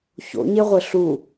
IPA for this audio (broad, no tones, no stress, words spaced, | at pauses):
ço̰ɲeʁʷɘ ɬu